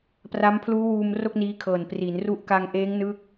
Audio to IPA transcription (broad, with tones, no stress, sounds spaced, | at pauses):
p r a˦˥ m pʰ l uː˦˥ w uː˧ m r o˥˩ k̚ n iː˦˥ kʰ ɤː˨˩ n p r i˩˦ n r u˦˥ ʔ k a˧ ŋ ʔ eː˦˥ ŋ n ɯ˦˥ k̚